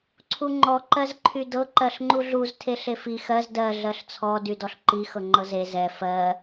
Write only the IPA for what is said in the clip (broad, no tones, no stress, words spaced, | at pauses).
ǀʰuŋ͡ǃɔ ǃɜzǃʰydɤ ǃɜɬŋ͡ǃuɮuz tʰeɬefi xɜz dɜ ɮɜɬt͡sʰɔ dydɔɬǃi xɤŋ͡ǃɤze zɛ fɜ